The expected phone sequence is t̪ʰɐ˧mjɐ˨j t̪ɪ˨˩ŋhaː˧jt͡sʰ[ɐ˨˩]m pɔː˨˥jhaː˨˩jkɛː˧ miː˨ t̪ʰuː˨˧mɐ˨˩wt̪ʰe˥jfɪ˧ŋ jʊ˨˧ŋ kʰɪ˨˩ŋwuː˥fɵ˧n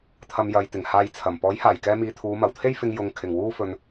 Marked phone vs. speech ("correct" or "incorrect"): correct